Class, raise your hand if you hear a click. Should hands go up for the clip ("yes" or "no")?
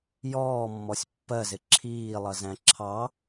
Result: yes